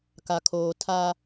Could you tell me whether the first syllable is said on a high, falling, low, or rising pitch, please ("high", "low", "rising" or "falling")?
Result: low